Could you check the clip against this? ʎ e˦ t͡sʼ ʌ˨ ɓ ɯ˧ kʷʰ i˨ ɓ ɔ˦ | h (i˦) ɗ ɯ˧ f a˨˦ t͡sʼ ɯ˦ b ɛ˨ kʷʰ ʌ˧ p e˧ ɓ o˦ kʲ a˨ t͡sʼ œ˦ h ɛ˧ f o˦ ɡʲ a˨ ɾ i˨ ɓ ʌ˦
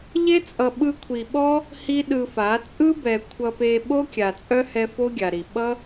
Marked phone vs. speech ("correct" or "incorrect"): correct